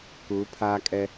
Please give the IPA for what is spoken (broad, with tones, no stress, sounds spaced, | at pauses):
k uː˨˦ pʰ aː˦ kʼ ɛ˦